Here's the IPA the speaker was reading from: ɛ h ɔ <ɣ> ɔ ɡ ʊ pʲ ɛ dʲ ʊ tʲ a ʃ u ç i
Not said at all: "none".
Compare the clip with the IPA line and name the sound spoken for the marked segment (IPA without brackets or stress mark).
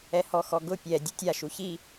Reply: x